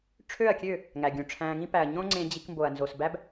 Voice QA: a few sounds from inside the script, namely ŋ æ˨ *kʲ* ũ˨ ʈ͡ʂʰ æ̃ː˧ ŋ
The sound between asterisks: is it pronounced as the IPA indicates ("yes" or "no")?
no